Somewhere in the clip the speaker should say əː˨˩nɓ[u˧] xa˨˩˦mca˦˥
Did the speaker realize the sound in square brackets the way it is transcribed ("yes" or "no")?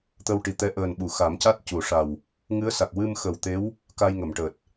no